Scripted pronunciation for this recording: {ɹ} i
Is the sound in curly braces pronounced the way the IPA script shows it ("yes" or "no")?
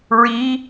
yes